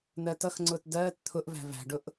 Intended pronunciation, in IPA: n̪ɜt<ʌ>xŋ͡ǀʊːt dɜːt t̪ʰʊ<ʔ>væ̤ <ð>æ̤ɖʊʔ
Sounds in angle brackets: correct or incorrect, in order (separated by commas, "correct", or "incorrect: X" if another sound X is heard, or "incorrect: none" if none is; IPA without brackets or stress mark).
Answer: correct, correct, incorrect: v